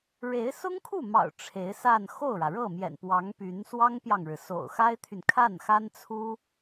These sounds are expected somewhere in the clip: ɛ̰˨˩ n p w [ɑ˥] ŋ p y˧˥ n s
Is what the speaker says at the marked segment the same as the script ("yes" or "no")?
no